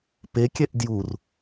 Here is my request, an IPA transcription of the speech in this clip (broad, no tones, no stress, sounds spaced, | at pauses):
p e kʲ ɛ ʔ d j u r